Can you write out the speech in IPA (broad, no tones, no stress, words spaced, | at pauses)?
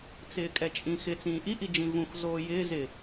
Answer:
t͡sɪːkʼɛt͡ʃʼĩːxɪ t͡sĩːʔi ʔid͡ʒĩvũx zoːjɪː zɪ